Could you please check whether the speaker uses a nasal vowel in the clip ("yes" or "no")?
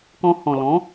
yes